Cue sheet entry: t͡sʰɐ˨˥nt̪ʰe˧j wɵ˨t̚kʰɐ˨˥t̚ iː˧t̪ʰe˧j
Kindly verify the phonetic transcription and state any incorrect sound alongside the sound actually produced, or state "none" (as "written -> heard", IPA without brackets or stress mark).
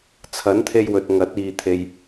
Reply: kʰ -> ŋ